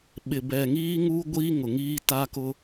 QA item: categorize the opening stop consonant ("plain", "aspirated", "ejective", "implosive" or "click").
implosive